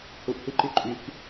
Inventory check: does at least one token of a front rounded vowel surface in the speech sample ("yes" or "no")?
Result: yes